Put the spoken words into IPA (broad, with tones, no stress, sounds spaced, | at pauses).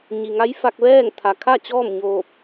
ɲ i˩ ŋ a˧˥ j f a˧ k̚ ʋ ɛː˥˨ ŋ t̪ʰ a˩ kʰ a˥˨ t͡ɕ ɔː˥˨ m ɲ oː˧˩ p̚